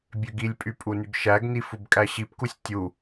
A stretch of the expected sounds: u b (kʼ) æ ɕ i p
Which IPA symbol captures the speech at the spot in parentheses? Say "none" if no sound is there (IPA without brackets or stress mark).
kʼ